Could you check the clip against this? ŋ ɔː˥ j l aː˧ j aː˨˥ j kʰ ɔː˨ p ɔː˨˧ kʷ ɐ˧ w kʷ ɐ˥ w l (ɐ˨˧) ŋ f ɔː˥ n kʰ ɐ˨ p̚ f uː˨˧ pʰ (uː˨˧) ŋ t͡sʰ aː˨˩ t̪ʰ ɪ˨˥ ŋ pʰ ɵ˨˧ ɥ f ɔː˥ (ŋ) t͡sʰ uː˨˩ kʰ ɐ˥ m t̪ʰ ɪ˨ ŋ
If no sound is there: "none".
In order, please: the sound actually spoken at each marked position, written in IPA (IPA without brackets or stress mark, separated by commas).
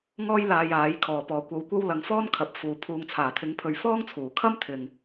ɐ˨˧, uː˨, ŋ